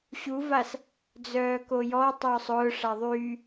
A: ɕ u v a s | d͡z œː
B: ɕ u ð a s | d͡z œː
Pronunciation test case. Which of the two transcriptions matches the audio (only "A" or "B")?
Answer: A